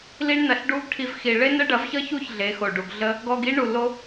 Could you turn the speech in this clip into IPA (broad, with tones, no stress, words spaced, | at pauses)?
li˧ɳnɐ˨ɬɖu˧ɡ ʈʰi˧vxi˨ ɭe˦nə˦ ɖɐ˨˦vçʌ˦çu˦˨ç ɮe˨˦xo˨ɖu˨ɡɮə˦ | ɡɔ˧ɡi˦ ɳu˨lo˧